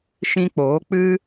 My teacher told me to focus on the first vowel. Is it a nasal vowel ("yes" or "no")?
yes